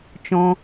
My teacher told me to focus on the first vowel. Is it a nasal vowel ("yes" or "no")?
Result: yes